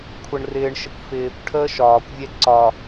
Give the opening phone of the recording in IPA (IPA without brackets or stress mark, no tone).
kʷʰ